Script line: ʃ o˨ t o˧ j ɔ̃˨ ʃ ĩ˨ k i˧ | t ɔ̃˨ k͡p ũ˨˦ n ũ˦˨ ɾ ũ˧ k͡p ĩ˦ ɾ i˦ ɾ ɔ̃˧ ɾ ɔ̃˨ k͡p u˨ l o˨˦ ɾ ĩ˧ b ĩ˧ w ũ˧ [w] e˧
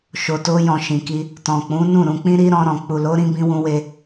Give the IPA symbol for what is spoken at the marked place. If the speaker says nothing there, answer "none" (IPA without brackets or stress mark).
w